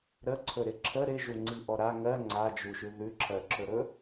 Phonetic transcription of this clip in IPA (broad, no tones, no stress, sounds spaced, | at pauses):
ɾ ə ǀʰ ɵ ɾ ɪ ǁʰ ə ɾ ɪ ʒ u ŋ͡ǀ i ʔ ɔ ɾ a ŋ ɜ ŋ͡ǀ a d͡ʒ u ʃ ʉ ð ʉ ǁʰ ɜ ǁʰ ɵ ɾ ɵ